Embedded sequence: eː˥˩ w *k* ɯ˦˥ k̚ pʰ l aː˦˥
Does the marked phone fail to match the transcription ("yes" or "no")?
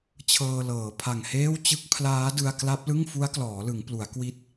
yes